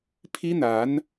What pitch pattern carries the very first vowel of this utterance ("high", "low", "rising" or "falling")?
high